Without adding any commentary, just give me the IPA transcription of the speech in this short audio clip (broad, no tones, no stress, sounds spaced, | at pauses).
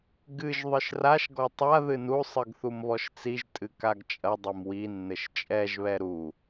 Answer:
ɡ ɨ ʒ ðˤ ɨ ʃ r a ʃ ɡ ɔ tˤ a ð ɨ n u sˤ ɨ ɡ θ u m β ɔ ʃ t͡s i ʒ tʼ ɨ k a ɡ t͡ʃʼ ɐ dˤ e m w i nː ɘ ʃ t͡ʃʼ ɛ ʒ β ɛ ɾ u